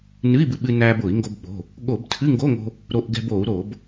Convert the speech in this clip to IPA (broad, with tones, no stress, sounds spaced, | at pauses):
n ɨ˧˥˧ i̯ b ɨ˧ ɓ ɨ˧ n æː˧ b ʊː˧˩˧ i̯ ŋ ɡ o˧ b ɓ o̤˩˧˩ | ɠ o˧˩˧ b tʰ ɨ˧˥˧ ŋ ɡ o˧˥˧ ŋ o̤˧ | ɾ o˧ ʔ ɡ ɛ̤˧ b o˧˩˧ u̯ ɾ o˧˩˧ b